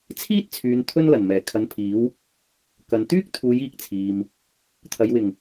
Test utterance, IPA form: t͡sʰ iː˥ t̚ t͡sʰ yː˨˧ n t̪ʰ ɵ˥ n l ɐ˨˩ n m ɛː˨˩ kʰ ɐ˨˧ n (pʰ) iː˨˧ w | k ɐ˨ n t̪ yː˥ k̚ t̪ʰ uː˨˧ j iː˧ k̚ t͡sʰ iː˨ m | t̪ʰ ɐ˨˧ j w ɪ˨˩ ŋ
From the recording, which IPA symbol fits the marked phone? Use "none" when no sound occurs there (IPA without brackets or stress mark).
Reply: pʰ